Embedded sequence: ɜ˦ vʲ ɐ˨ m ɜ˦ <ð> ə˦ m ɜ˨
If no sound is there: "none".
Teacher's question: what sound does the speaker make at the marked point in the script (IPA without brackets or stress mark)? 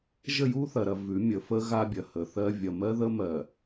ð